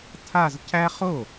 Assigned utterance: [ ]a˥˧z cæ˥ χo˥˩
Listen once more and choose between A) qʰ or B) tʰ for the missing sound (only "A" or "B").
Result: B